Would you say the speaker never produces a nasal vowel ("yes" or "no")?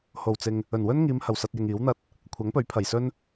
yes